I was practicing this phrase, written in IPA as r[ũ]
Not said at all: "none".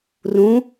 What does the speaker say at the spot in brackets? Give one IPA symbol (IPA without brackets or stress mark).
ũ